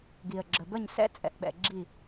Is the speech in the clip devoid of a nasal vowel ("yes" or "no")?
yes